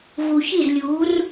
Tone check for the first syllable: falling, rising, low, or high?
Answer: low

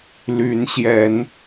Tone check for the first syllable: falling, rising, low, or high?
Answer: rising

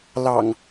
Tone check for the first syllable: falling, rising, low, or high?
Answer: low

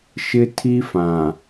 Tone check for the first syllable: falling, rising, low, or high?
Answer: high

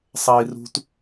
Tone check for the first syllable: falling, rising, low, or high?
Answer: high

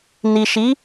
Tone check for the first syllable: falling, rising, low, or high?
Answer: low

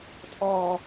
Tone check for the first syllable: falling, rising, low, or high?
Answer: low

